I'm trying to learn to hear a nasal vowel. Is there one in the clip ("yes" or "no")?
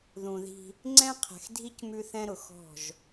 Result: yes